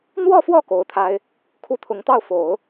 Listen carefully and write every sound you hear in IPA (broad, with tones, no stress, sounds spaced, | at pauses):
n̪ w ɔ˥˧ f w ɔ˥˩ k o˧˥ ʊ̯ t̪ʰ a˥ ɪ̯ | kʰ u˥˩ t̪ʰ ʊ˧˥ ŋ t̪ ɑ˥˩ ʊ̯ f o˨˩˦ ʊ̯